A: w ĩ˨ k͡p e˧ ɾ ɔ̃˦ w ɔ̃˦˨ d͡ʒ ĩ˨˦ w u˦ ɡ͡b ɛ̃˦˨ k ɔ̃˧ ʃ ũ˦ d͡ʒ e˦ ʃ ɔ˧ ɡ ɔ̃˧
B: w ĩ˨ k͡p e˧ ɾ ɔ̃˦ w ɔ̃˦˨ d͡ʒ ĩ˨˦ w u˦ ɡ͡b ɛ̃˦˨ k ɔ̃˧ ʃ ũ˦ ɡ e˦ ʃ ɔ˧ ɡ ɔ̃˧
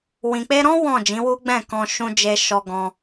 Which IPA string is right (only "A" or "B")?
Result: A